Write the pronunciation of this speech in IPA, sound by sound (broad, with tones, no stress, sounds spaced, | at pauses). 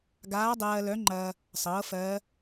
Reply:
ɡ aː˧˥ dˤ ɜː˧ l œ˧˥ ŋ͡ǃ ɐː˧ | sˤ ɤː˩˥ f ɜː˧˥